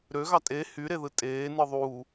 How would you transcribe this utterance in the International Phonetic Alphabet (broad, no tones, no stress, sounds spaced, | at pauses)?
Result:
ɾ ø ɣ ɑ tʼ e h y ɾ e ð ɯ tʼ eː n ɯ ðˤ u